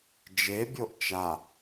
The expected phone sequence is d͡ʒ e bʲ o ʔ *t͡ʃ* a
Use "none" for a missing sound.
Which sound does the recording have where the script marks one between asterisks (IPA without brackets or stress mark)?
t͡ʃ